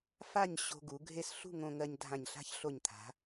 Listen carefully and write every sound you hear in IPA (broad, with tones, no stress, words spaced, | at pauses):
fa˥˧ɲ ɕo̤˧ɡu˩˧ ɡʱe˥˧s ɬṳ˥˧ŋõ˧ŋɜ˧ɲ dʱã˧˩ɲɬa̤˥çɬo˧˩ɲt̪ʰa̤˩˧